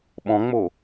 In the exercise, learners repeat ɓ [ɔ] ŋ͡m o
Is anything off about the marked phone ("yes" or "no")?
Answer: yes